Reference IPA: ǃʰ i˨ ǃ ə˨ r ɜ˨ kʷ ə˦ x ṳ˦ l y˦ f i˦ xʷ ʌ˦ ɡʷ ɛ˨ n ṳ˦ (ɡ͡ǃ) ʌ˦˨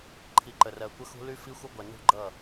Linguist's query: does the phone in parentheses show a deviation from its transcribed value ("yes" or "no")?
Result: no